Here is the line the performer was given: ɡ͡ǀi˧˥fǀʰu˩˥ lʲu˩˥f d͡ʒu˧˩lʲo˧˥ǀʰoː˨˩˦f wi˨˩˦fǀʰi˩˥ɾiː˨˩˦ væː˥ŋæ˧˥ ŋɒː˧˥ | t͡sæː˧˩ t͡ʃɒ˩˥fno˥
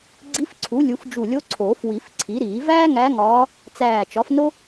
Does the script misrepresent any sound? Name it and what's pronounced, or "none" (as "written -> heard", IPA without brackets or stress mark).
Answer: none